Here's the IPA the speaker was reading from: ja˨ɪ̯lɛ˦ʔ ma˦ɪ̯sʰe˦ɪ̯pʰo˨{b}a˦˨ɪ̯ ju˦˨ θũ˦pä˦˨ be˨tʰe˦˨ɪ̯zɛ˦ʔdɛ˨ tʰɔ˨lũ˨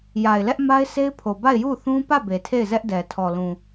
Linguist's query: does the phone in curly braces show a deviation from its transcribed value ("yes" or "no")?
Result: no